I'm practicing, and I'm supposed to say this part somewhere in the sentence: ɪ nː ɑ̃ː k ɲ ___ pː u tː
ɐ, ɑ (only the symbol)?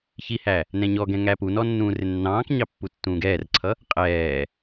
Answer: ɑ